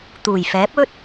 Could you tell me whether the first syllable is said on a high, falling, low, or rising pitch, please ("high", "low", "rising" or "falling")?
low